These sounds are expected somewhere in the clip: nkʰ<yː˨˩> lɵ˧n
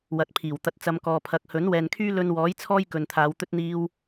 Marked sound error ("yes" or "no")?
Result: yes